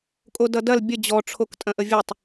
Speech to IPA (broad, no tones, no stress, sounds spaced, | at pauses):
kʼ o d ʌ d ɐ l bʲ ə d͡ʑ ɔ ʈ͡ʂʰ o k tʼ ɐ̃ ʔ ə vʲ ə tˤ